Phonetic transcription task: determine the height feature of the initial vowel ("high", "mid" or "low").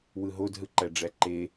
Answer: high